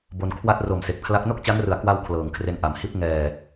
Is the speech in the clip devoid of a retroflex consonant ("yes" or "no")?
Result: yes